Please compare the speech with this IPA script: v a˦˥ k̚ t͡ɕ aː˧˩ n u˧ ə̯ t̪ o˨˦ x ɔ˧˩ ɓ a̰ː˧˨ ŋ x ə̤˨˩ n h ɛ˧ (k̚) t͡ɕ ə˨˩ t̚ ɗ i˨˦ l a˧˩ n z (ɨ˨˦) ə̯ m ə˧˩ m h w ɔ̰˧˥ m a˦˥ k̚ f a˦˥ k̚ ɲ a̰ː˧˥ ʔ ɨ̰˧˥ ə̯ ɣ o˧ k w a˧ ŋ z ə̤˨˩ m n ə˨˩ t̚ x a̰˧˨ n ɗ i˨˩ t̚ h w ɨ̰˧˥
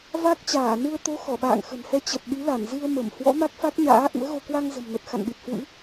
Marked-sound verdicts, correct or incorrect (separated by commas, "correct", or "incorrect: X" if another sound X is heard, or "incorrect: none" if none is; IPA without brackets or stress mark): incorrect: none, incorrect: ɨ˧